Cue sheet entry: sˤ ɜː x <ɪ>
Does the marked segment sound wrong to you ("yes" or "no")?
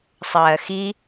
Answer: yes